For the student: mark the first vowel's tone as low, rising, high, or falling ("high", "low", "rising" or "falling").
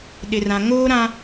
low